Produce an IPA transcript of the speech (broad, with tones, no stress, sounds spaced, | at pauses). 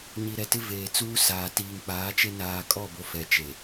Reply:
ɲ i˨ ɾ ɛ˨ t ɪ˦ v eː˨ t͡s uː˦ s aː˨ t iː˨ ŋ k͡p aː˨˦ t͡ʃ e˦ n aː˨ kʼ ɔ˦˨ b o˨ f ɛ˨ t͡ʃ e˨